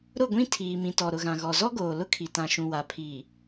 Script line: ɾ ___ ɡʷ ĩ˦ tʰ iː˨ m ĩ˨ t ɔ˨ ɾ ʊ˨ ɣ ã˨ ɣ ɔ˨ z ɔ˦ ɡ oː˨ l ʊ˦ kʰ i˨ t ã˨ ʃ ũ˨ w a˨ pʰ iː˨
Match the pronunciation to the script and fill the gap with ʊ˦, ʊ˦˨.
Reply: ʊ˦˨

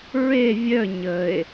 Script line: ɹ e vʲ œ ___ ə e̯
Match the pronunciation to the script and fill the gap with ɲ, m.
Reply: ɲ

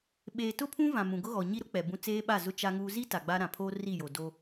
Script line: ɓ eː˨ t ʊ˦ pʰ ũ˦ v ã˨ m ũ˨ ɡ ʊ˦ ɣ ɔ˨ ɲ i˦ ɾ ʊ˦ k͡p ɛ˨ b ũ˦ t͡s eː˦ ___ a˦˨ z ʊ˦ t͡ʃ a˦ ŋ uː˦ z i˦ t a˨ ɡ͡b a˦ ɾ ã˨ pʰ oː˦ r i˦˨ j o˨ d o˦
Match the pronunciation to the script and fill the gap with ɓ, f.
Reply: ɓ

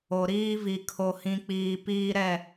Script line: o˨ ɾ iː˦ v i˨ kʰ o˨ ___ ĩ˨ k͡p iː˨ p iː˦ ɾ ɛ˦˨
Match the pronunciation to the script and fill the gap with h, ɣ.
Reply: h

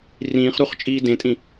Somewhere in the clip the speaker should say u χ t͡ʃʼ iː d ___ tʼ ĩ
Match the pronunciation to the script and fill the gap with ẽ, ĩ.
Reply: ẽ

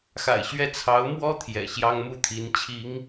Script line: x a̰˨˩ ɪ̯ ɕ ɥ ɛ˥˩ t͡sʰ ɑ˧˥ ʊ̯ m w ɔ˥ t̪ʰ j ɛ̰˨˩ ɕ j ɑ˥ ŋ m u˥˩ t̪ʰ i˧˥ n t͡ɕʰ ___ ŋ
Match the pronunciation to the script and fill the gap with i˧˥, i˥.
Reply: i˧˥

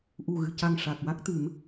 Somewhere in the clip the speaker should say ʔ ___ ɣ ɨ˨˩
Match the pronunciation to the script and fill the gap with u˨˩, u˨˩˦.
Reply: u˨˩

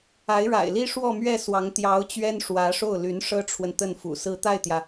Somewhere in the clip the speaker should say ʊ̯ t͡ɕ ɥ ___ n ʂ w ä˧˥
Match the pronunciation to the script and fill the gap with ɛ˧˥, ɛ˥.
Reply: ɛ˥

